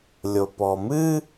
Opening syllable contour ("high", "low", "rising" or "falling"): low